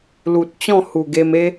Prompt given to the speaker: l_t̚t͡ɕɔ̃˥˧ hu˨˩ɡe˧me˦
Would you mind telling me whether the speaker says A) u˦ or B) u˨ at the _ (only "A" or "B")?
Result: B